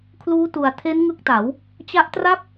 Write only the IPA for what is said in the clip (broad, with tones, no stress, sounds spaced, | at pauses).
kʰ l uː˦˥ t u˩˦ a̯ tʰ e˦˥ n ŋ ɯ˦˥ k̚ t a˩˦ w | t͡ɕ a˦˥ ʔ t r a˥˩ p̚